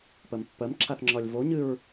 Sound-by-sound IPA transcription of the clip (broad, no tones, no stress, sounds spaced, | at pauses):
p ɜ m pː ɜ m ǁʰ a θ ŋ͡ǁ ɒ lʲ v o ɲ ɨ ɹ